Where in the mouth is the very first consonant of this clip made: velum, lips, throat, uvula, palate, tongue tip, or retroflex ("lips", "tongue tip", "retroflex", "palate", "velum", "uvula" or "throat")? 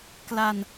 velum